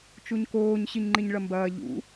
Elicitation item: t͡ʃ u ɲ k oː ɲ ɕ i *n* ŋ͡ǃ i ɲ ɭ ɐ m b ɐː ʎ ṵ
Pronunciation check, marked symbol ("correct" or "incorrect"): incorrect